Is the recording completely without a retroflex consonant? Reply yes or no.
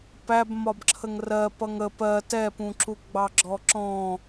yes